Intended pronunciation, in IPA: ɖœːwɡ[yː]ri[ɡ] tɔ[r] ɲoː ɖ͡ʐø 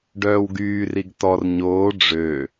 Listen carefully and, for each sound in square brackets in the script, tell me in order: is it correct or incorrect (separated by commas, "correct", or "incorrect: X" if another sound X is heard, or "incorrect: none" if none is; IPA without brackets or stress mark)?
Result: correct, correct, correct